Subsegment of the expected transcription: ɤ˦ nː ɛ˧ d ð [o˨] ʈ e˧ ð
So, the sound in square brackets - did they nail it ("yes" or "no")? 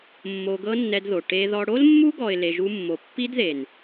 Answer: yes